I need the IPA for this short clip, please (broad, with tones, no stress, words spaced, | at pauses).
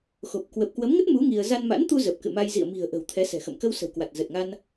xo˨˩p̚ kwə˨˩p̚kwə˨˦mŋə˦˥t̚ mu˨˦ ŋi˧ə̯ za˧nma̰˧˥nt̪u˧ zə˨˩p̚kɨ̰˧˨ma˧j zḭ˧˨ə̯mi̤˨˩ə̯ʔə̤˨˩w t̪ʰɛ˨˦sɛ̤˨˩xə̰˧˨m kə˧wsə̤˨˩wkwa˨˩t̚ zə˨˩t̚ŋa˧n